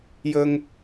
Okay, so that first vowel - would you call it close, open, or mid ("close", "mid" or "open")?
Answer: mid